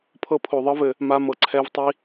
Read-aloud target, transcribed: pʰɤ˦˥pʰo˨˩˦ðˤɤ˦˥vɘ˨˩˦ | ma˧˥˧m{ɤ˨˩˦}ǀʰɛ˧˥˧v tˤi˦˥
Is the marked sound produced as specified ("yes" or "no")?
yes